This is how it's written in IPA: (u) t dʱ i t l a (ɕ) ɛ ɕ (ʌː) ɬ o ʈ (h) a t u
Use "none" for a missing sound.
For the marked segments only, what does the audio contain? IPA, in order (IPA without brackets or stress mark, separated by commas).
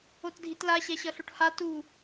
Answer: o, ɕ, ʌ, h